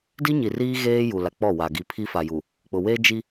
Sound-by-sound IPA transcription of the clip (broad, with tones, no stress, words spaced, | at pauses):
di˦ɲi˨riː˦ ɣeː˦ ju˨la˨ k͡pɔ˦˨wa˨ ɡi˨pʰi˦fa˨ju˨ | k͡pʊ˨ we˦d͡ʒi˦